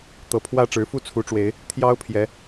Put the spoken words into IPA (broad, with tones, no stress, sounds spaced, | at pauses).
t̪ ɤ˨˦ pʰ w ä˥˨ ʈ͡ʂ ɻ̩˨˦ f u˥˨ t͡sʰ u˨˦ ʈ͡ʂ w e˨˦ ɪ̯ | t̪ʰ j ɑ˦ ʊ̯ pʰ j ɛ˨˦